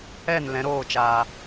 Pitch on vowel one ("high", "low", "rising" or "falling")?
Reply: falling